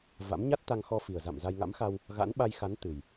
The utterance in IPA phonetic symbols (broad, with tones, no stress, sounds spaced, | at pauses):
v a̰˧˥ m ɲ a˦˥ t̚ t̪ a˧ ŋ x ɔ˧ f i˨˩ ə̯ z a̰˧˨ m z a˧ j ŋ a̰˧˥ m x a˧ w | ɣ a̰˧˥ n ɓ a˧ j x a˨˦ n t̪ ɨ˨˩ j